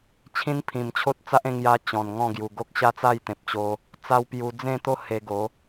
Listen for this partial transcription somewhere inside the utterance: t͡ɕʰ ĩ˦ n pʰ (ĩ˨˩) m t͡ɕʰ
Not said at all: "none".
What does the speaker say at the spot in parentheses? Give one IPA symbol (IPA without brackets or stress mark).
ĩ˨˩